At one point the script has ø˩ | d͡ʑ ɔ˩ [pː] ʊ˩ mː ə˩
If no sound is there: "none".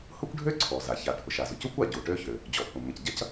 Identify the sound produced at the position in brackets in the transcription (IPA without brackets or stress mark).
pː